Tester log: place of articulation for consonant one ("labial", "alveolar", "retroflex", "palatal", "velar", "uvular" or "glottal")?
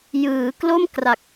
palatal